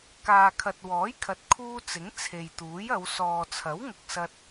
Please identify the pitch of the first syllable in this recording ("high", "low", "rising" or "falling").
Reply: low